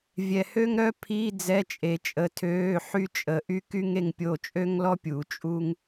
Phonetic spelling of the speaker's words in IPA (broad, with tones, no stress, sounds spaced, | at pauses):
vʲ ɛ˨ h ø˥ ŋ ɾ œ˥ pʰ i˧˥˧ d͡z ɛ˧˥˧ t͡ʃʼ e˨ t͡ʃʼ ə˨˥ tʰ øː˧˥˧ ħ y˥ t͡ʃʼ ə˨˥ ʔ y˥ k y˥ ŋ e˥ ŋ pʲ o˥˨ t͡ʃʼ ø˥ ŋ l ɔ˥ pʲ u˨˩˦ t͡ʃʼ u˥ ŋ